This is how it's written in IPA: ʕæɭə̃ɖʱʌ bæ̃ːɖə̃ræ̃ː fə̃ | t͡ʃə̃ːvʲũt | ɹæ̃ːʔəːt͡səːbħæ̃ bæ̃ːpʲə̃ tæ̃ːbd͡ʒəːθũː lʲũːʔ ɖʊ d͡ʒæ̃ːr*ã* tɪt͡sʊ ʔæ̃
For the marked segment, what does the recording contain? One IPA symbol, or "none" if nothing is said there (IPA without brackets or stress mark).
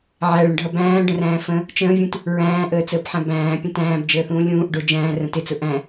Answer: ə̃